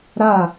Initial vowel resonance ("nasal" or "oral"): oral